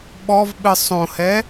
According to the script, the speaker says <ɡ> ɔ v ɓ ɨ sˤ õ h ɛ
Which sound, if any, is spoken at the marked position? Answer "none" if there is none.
ɓ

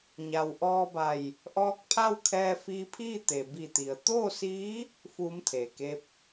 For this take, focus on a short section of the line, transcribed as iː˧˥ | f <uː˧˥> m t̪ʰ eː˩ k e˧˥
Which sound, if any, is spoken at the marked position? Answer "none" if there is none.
uː˧˥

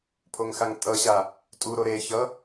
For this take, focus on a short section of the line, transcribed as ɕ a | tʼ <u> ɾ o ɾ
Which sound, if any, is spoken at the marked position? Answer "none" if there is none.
u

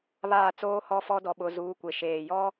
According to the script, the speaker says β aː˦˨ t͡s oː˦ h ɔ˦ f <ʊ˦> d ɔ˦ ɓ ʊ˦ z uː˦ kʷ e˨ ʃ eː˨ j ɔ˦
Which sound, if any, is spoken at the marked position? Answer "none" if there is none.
ɔ˦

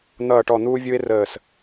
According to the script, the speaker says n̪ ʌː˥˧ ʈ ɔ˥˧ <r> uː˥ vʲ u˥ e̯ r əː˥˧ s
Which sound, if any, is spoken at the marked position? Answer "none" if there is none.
n̪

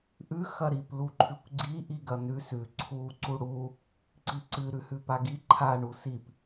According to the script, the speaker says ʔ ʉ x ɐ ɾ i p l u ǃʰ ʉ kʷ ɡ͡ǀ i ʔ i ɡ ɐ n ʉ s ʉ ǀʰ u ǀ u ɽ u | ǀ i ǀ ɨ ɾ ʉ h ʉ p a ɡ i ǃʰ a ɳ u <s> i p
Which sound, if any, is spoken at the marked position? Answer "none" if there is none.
s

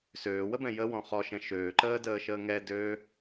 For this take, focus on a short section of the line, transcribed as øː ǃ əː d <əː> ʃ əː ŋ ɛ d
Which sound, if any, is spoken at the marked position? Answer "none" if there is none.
əː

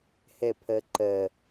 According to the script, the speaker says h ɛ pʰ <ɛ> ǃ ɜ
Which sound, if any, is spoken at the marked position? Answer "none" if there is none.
ɜ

